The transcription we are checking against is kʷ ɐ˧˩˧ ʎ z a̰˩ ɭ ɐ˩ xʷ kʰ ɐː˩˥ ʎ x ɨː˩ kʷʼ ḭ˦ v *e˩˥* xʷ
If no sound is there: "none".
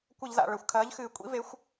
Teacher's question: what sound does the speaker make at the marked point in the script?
e˩˥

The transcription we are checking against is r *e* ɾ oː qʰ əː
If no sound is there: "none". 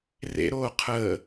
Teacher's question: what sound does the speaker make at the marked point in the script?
ḛ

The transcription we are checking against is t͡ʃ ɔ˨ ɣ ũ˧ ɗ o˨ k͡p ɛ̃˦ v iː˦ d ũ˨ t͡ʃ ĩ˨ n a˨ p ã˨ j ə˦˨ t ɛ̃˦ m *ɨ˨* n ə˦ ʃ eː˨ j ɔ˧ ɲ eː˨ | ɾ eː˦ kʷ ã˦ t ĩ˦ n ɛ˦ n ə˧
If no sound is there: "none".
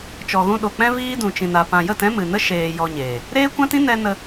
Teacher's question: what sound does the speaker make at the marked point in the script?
ɨ˨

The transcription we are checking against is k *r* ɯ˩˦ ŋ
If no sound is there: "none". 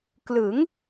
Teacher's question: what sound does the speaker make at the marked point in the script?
l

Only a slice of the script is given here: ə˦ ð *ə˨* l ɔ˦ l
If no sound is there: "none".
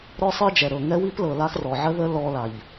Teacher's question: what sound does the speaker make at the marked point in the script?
ə˦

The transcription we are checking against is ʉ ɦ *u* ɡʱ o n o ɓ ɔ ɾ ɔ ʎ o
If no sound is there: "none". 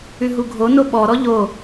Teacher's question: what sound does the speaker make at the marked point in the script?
u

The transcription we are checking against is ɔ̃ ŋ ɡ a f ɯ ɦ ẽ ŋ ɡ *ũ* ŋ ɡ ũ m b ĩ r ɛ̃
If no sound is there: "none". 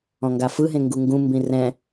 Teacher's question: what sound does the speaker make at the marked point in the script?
u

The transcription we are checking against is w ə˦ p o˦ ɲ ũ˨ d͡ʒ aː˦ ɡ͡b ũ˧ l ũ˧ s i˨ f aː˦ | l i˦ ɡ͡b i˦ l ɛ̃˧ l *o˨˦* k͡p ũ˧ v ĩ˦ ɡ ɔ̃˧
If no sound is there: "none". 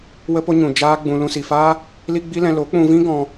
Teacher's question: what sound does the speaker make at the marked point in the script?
o˨˦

